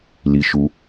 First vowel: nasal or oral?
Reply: oral